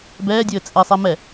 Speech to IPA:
bɛːdʲɘː t͡sʼesˤe mɛ

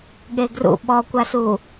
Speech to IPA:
ɠeɡrṵ ɓɔkʷasu

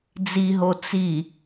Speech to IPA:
d͡ziɦo t͡si

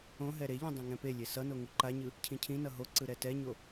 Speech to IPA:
õɦɛ ɾeʎɛ̃ dˤɛ̃ŋɛ̃pelʲe sʌno ŋuǃaɲɯ | cʰĩcʰĩnʌ ɦoǀɯ ɾɛtɛɲo

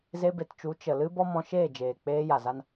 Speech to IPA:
ze˧be˨tt͡ʃu˨˦ t͡ʃə˨lɨ˦ bɔ˦mɔ̃˧ ʃeː˦˨d͡ʒeː˨k͡peː˧ ja˨za˦n

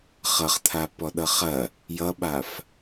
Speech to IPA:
χʌχt̪ʰa pɔɗʌχɐ | jʌɓaf

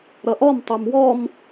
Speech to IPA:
ɾʌʔɔm tˤomwɔm

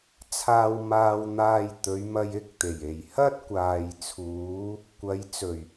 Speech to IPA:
t͡sʰaː˧w maː˧wn̪aː˧jt̪ɵ˨˧ɥmɐ˧j ɪ˥k̚t̪e˨˩j e˨˩jhɐ˥t̚ kʷaː˨jt͡sʰuː˨˧ | kʷɐ˨˧j t͡sɵ˨˩ɥ

